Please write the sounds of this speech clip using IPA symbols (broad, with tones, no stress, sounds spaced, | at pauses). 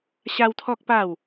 ɕ a˦ w t̪ʰ ɔ˦ k̚ p a˥˧ w